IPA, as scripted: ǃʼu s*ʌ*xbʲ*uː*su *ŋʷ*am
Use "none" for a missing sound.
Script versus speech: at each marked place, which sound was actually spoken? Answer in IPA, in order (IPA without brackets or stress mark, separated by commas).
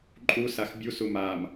a, u, m